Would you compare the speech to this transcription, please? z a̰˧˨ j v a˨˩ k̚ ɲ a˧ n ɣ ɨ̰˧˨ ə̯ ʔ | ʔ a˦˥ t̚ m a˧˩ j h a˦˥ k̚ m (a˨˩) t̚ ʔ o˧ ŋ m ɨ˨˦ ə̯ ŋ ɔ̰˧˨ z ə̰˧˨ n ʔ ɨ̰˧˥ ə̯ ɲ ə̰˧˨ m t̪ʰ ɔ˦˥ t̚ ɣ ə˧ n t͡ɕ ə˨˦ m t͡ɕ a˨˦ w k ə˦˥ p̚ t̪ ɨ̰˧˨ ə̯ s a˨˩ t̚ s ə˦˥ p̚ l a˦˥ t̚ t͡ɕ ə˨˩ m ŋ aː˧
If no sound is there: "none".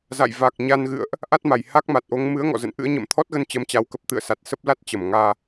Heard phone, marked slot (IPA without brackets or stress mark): a˨˩